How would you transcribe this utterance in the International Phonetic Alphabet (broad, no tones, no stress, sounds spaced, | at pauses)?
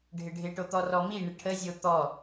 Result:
ɖʱ ɪ ɖʱ ɪ ʈ o t̪ ɔ r ɔ m i ɳ ɪ ʈʰ ə zʲ o t̪ ɔ